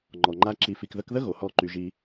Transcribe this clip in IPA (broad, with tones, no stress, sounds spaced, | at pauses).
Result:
ŋ͡ǃ ɔ˨ ŋ͡ǃ a˧ ǁ i˨ f i˨ k ð ə˧ k ð ə˦ ɣ o˨ h ɔ˦˨ ǃ y˧ ʒ i˦